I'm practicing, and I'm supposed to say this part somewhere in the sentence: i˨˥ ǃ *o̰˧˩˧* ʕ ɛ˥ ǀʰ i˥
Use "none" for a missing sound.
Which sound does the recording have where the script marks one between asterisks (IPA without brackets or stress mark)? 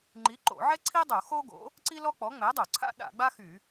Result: o̰˧˩˧